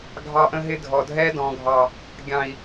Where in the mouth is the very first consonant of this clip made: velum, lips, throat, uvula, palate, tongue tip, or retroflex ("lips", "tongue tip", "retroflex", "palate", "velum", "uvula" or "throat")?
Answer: velum